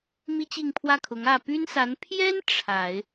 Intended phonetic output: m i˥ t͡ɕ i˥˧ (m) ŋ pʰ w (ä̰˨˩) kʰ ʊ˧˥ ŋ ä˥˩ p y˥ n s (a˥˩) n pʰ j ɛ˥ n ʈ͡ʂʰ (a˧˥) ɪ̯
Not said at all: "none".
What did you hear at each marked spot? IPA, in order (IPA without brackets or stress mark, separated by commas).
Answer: none, ä˥˩, a˧˥, a˨˩˦